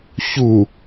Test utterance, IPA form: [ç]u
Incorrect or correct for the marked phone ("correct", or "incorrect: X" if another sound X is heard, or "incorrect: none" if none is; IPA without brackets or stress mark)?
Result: correct